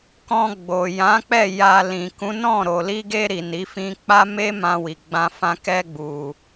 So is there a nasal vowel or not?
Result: yes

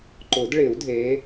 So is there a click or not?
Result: yes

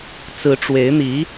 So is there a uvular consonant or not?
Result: no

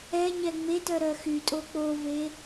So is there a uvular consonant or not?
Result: no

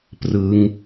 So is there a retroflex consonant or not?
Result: no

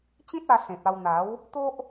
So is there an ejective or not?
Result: no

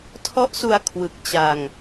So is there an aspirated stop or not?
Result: yes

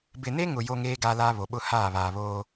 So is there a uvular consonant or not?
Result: no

